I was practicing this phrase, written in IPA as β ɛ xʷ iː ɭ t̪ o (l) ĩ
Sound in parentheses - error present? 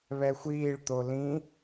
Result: no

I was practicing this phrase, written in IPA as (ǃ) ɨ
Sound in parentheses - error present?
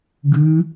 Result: yes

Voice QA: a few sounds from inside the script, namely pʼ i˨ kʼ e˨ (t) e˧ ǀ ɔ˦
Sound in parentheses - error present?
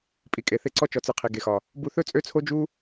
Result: yes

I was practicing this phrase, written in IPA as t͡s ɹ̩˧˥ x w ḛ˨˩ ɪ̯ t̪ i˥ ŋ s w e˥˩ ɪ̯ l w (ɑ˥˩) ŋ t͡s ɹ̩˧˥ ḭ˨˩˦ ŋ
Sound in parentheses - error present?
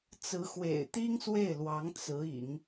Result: yes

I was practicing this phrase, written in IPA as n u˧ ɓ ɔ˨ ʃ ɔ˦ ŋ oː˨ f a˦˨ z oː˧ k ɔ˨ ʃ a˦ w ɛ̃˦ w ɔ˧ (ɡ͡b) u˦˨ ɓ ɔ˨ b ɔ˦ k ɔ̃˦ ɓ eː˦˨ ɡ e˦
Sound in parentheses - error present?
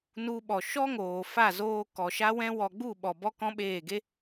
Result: no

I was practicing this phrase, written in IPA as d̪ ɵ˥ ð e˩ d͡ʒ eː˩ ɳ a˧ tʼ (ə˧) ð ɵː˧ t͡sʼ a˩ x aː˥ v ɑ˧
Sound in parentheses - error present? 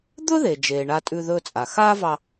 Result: yes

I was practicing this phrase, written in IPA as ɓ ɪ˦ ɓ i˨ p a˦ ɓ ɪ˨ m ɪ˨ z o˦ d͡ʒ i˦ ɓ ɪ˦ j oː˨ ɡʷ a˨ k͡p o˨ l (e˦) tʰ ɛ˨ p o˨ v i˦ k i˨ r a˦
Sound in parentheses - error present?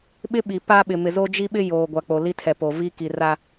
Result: yes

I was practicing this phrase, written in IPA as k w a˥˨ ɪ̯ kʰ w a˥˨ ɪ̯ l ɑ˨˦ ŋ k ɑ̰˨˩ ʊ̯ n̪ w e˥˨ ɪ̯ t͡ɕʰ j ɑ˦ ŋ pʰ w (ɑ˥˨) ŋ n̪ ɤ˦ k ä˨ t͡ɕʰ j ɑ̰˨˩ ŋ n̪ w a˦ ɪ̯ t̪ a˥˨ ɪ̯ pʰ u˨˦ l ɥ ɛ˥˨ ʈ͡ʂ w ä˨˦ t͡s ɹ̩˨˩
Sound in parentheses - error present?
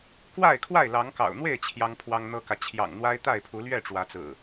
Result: yes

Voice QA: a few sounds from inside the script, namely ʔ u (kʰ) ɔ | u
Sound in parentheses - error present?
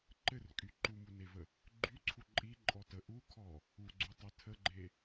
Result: no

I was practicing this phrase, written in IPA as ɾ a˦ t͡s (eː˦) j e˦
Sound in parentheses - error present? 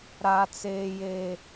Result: no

